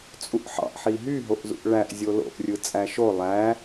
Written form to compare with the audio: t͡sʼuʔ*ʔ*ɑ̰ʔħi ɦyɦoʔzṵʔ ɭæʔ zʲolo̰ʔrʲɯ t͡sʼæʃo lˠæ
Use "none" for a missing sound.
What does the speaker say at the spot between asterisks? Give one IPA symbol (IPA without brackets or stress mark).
ħ